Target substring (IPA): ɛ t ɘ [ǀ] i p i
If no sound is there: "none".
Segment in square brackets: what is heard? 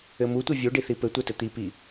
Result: t̪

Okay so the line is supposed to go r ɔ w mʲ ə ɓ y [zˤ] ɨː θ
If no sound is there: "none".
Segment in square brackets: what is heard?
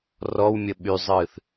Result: zˤ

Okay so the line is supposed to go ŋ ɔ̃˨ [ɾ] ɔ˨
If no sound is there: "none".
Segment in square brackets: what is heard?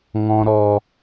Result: ɾ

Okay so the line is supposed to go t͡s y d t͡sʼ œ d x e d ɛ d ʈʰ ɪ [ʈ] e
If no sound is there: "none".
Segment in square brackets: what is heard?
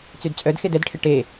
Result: ʈ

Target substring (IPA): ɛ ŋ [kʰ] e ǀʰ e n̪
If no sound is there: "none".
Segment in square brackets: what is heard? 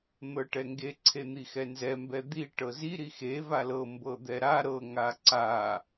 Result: ɡ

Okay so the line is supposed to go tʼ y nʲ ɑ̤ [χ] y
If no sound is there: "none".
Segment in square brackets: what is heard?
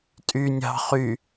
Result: χ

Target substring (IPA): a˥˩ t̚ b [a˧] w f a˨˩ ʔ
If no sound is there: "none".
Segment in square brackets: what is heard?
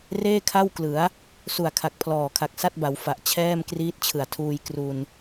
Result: a˩˦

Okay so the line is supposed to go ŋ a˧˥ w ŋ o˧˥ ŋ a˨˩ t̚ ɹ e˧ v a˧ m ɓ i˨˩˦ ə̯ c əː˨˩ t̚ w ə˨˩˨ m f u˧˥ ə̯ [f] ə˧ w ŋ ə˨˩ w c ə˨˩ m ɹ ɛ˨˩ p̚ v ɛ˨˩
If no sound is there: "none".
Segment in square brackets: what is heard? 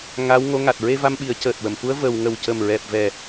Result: v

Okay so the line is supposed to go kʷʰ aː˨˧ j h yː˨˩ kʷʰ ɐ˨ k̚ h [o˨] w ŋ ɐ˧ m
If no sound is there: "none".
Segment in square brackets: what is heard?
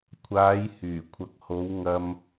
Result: o˨˧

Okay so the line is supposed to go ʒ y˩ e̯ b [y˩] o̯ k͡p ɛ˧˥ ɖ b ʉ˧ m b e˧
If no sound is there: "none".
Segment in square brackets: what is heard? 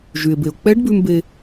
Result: e˩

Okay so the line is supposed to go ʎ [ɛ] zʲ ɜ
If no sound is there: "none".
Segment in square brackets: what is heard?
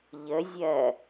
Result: ə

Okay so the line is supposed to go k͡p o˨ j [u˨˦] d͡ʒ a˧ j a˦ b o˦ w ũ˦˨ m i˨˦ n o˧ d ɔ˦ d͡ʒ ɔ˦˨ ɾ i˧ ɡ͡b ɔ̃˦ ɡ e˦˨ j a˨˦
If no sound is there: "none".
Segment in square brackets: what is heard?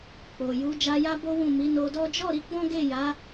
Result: u˨˦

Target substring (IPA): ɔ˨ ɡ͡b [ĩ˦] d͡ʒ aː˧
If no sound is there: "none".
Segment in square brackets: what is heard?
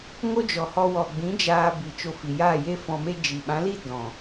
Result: ĩ˨˦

